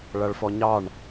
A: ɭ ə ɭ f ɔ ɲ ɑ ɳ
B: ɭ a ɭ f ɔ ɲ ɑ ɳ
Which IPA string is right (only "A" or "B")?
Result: B